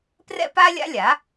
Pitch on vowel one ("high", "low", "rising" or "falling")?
high